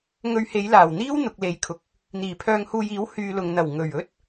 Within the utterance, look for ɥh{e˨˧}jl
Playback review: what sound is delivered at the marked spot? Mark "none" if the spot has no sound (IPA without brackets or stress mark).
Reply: e˨˧